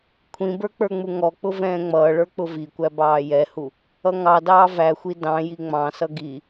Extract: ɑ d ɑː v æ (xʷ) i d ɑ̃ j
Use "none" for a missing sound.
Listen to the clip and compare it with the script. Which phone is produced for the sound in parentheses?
xʷ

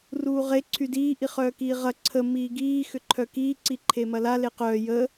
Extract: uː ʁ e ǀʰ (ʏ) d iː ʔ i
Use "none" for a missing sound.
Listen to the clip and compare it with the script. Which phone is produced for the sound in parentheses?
y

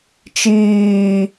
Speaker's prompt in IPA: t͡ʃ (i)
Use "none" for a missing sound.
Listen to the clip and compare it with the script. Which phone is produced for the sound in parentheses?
iː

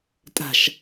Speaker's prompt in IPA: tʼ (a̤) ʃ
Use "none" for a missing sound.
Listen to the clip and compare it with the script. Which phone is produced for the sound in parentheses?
a̤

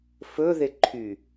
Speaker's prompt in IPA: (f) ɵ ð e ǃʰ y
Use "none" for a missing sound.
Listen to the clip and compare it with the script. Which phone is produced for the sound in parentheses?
f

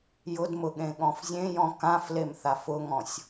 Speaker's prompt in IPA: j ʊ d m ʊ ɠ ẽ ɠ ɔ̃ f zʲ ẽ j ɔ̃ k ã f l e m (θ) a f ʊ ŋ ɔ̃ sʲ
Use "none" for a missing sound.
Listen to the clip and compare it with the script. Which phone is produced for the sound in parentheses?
θ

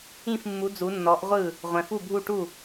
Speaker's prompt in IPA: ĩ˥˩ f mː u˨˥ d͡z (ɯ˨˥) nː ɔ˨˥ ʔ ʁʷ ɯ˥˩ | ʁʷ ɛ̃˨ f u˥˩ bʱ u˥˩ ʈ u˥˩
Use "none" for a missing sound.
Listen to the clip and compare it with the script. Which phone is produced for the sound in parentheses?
u˨˥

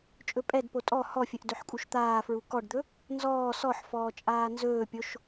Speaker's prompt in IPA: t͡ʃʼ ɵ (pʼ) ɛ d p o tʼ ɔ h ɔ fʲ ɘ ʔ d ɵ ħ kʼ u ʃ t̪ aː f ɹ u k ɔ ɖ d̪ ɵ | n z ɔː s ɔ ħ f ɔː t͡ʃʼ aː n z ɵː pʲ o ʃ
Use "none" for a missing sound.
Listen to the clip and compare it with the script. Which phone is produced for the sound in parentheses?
pʼ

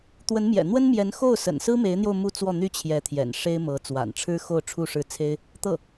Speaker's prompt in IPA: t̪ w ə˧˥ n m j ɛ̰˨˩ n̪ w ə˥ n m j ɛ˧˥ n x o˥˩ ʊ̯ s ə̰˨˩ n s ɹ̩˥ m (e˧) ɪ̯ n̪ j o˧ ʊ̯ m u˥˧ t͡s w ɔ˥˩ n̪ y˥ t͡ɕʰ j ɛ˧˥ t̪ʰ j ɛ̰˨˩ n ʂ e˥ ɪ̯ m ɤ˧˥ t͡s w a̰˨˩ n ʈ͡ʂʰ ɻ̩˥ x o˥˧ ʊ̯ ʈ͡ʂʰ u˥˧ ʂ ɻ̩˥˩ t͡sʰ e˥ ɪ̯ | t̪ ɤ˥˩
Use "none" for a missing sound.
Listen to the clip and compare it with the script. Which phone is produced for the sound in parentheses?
e˧˥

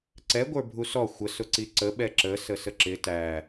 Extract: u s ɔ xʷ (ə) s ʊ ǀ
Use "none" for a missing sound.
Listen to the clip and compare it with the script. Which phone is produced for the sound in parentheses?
ə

